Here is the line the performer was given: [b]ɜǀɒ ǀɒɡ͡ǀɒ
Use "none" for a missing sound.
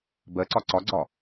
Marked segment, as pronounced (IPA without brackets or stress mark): b